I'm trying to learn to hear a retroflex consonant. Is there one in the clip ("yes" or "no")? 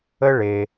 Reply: yes